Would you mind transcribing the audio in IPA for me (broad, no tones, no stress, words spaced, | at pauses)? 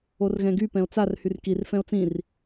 orɣɛ̃ɡy pɛ̃o̯t͡sar hyrkir fɛ̃o̯t͡sĩr